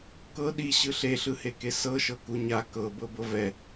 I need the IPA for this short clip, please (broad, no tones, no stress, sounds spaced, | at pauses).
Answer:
k ɤ ɗ i ɕ ɯ ɬ e ɬ ɯ h e k e s ɤ ʃ ɤ k u ɲ a k ɤ b ɤ b ɤ v ɛ